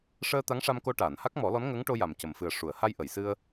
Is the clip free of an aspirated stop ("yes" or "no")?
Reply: yes